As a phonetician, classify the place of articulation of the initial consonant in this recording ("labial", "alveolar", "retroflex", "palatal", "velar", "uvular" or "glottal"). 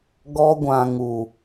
velar